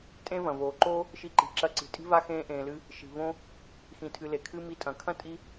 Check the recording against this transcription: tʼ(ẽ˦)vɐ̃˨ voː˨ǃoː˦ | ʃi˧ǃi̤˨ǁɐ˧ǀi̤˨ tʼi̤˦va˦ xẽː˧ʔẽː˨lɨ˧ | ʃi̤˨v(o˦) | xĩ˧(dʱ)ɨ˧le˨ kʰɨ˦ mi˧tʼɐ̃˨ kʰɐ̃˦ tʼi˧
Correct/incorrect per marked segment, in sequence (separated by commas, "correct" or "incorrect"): correct, incorrect, incorrect